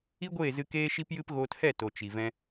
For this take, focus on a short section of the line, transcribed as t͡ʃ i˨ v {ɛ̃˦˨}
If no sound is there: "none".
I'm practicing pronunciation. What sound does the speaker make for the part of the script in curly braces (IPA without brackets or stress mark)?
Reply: ɛ̃˧